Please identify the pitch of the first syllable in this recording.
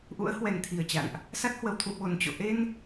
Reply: rising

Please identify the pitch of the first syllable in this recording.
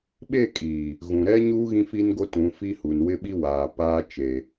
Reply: falling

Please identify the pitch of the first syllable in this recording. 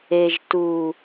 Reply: low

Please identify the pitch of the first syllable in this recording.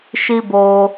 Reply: high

